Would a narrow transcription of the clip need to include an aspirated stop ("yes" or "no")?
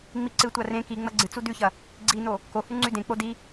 no